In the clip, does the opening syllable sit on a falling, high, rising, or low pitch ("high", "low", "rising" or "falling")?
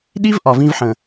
high